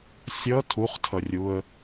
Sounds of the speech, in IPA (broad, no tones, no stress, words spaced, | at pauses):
sʲʌ tʰuχtʰʌrʲuə̯